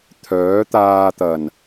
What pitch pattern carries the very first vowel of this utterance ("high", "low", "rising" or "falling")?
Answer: rising